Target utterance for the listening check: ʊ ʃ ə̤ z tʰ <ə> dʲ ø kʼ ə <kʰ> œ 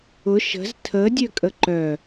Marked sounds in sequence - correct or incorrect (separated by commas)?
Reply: correct, incorrect